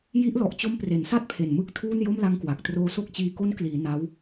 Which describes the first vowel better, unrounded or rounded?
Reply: unrounded